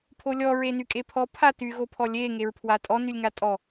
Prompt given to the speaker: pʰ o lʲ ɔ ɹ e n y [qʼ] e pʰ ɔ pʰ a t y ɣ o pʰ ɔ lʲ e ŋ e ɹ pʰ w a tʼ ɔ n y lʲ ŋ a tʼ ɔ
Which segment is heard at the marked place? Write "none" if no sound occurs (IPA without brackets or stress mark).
kʼ